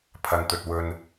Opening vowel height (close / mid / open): open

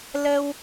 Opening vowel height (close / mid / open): mid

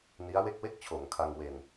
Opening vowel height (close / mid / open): close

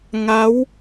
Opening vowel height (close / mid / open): open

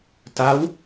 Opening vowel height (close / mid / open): open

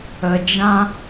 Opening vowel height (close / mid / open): mid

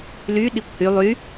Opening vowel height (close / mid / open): close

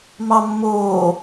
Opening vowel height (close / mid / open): open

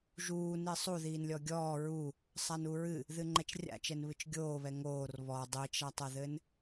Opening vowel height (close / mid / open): close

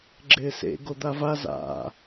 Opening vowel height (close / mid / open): close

